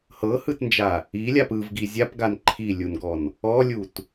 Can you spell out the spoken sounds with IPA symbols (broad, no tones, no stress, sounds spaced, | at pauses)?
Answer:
h ɤ h ɯ t n d͡ʒ a | i lʲ a p ɯ v ɡ i zʲ a p ɡ a n ǃʰ i lʲ u n ɡ ɔ n | ɔ lʲ u t